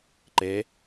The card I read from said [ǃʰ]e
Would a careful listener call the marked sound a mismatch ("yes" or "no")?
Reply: yes